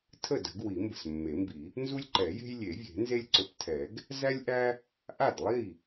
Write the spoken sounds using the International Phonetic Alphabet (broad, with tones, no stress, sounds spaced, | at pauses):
tʰ ə˥˩ d ə̤˨˩˦ ɡ w i˨˩˦ m b ə̤˨˩ s mː e˨˩˦ m b i˨˩˦ | n z u˦ lʲ ǃ ɛ˨˩˦ j e̤˦ j lʲ e˨˩˦ vʲ e̤˨˩˦ n z e˦ lʲ ǀ ʊ˨˦ p tʰ ɛ˨˩˦ ɡ | z æ˦ lʲ ʔ æ˦ | ʔ a˥˩ d lˠ i˥˩